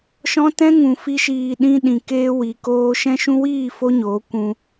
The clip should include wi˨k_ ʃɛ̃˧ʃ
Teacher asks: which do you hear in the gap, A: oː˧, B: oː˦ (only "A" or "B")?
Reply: A